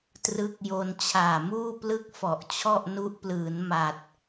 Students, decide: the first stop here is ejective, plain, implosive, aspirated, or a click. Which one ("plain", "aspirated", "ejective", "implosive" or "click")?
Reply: plain